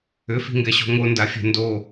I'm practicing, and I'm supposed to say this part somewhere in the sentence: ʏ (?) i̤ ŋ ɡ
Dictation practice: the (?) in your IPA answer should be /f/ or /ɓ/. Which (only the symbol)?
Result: f